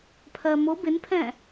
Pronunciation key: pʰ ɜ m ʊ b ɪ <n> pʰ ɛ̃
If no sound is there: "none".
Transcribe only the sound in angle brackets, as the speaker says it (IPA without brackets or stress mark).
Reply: n